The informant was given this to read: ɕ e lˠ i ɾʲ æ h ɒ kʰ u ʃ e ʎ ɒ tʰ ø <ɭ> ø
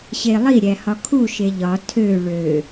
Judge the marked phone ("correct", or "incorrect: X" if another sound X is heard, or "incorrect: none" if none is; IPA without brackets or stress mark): correct